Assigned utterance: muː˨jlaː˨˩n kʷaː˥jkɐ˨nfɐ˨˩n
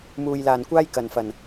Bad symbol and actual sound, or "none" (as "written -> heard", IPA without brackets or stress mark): none